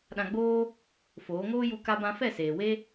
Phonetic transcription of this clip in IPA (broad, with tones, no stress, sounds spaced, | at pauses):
ɗ ã˧ ɡ͡b oː˦ | f oː˨˦ ŋ oː˦ j u˦ k a˧ b ã˧ f ɛ˦˨ s eː˨ w e˦